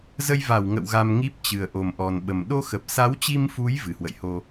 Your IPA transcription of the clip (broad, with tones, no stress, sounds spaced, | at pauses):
z ə˧ j v a˧˩ w ŋ ə̰˧˨ w ɣ a˧ m ŋ i˦˥ p̚ t͡ɕ ɨ˨˩ ə̯ ʔ o˨˩ m ʔ ɔ˨˩ n ɓ ə˨˩ m ɗ o˧ x ə˨˩ p̚ s a˨˦ w t͡ɕ i˧ m f u˨˦ j v ɨ˨˩ h w ə̰˧˨ j h o˧